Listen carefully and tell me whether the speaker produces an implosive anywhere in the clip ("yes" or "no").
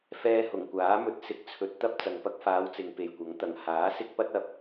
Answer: no